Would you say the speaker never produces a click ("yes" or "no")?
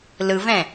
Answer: yes